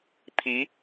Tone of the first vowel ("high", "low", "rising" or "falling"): rising